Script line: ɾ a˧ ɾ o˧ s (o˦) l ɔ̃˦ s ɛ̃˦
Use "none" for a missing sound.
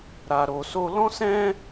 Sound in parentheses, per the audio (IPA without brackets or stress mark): o˦